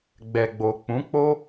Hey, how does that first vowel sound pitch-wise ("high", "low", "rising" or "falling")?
low